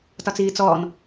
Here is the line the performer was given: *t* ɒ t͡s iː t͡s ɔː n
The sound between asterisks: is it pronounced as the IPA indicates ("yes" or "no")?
yes